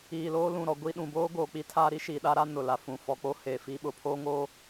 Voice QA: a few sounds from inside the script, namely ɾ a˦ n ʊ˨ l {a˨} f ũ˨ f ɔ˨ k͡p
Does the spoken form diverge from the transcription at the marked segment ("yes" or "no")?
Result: yes